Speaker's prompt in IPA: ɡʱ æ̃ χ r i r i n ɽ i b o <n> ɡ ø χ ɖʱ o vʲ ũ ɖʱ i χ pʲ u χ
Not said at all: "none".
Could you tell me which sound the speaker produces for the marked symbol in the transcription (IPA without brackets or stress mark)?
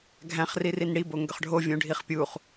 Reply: ŋ